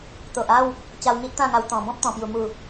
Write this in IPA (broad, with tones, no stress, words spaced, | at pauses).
t̪o˨ʔa˥˧w | t͡ɕa˧wŋi˦ʔt̪ã˥˧ŋa˧w t̪ɔ̃˨˩ bɔ̃˦p̚t̪ɔ̃˨˩pju˨˩ mu˨˩